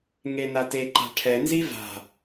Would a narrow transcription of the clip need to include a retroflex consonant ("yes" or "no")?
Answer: yes